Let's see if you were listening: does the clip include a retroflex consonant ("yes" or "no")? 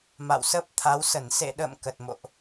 no